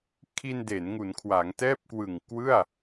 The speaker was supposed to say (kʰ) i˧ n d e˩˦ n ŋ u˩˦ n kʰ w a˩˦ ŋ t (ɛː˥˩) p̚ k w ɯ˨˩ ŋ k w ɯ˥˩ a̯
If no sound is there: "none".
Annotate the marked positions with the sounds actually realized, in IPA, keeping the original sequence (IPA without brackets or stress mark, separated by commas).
kʰ, ɛː˥˩